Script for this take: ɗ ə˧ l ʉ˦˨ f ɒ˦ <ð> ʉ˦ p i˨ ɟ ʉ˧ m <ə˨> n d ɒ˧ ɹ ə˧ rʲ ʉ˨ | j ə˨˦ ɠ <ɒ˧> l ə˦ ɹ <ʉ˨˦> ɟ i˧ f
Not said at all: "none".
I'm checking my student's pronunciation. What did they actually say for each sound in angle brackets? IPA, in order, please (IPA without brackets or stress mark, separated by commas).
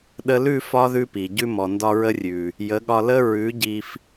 ð, ɔ˨, ɒ˧, ʉ˨˦